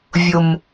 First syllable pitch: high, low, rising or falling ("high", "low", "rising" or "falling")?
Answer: high